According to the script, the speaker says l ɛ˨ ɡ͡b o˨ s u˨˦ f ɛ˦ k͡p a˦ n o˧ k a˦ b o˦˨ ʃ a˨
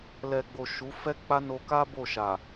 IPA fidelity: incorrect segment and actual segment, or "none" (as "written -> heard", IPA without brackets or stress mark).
s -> ʃ